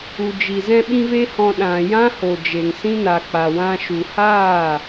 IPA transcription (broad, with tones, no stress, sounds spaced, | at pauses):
u˨ d͡ʒ i˨ z ɛ̃˦ ɓ ĩ˦ v e˦ h ɔ̃˧ ɗ ã˨ j ã˦ h o˨ d͡ʒ e˨ ŋ s ĩ˦ n a˨ k͡p a˨ w ã˧ ʃ u˨ h aː˦˨